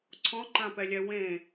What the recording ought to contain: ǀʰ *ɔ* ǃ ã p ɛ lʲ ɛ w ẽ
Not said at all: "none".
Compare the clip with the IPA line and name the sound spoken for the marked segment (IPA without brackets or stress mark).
ɔ̃